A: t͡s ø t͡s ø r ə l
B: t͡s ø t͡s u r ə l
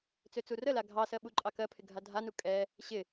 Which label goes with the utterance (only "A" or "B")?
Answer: B